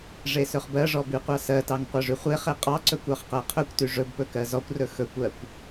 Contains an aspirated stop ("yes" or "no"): yes